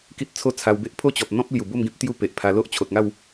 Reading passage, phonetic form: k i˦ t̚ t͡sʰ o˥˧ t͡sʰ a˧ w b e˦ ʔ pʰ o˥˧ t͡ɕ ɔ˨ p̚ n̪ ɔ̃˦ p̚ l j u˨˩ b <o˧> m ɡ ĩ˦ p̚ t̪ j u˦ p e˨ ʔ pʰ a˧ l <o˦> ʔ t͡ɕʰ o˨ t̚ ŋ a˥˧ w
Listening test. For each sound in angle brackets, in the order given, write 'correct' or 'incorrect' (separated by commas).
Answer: incorrect, correct